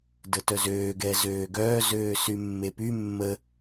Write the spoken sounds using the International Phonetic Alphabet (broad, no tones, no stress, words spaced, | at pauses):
dətœzøː ɡɛzøːɡœː zøːsymːepy mːə